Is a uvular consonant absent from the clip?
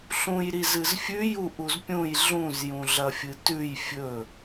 yes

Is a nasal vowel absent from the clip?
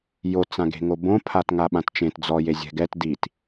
no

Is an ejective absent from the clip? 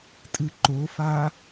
no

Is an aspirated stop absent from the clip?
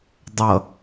yes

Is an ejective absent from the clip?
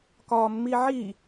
yes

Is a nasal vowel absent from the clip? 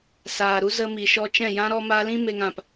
no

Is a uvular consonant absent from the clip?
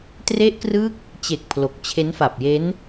yes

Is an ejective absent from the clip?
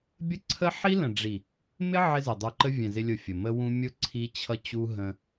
yes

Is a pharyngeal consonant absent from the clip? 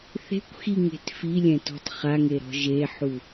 no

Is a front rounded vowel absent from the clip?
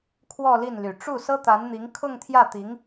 no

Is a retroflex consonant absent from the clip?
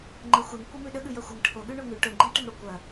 no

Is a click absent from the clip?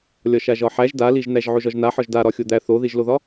yes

